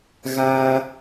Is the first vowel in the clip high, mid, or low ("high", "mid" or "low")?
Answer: low